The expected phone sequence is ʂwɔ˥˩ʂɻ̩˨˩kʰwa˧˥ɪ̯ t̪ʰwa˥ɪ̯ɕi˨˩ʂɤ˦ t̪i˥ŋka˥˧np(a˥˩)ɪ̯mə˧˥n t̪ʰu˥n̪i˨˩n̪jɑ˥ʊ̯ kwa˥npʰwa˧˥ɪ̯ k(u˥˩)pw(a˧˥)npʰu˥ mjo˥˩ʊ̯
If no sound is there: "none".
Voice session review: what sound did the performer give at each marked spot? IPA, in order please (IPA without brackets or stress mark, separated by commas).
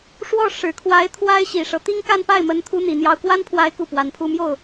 a˥˩, u˥˩, a˧˥